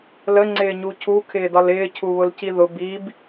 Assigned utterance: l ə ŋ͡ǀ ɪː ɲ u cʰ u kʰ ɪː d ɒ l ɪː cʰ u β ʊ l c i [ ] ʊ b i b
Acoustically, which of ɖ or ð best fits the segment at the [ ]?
ð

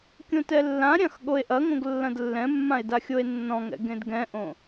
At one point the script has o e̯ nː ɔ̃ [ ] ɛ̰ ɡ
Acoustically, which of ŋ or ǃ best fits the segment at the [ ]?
ŋ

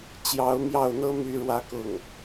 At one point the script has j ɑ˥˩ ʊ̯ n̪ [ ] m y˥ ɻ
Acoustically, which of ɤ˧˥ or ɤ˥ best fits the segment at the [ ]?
ɤ˥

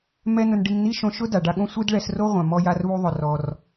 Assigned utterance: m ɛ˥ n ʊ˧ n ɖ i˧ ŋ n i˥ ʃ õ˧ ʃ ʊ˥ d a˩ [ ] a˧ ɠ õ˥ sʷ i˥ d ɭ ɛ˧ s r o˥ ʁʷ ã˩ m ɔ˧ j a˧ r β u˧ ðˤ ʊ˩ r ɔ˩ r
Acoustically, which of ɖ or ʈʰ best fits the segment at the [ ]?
ɖ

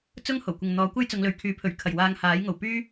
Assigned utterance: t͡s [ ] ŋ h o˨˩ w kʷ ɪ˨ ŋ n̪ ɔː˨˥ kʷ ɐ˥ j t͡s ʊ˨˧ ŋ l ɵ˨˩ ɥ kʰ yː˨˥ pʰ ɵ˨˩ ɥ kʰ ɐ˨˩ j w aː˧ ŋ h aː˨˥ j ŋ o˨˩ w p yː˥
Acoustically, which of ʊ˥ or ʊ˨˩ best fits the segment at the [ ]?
ʊ˥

